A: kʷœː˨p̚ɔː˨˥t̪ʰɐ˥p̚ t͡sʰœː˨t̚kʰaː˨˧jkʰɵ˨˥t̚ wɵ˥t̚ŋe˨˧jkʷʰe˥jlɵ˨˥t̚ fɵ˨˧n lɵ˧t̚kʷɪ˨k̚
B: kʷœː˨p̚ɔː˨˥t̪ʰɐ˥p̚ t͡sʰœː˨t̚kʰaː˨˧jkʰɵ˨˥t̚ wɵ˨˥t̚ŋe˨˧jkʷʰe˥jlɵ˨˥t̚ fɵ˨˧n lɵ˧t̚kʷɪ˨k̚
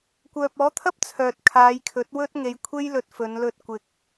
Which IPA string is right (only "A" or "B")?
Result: A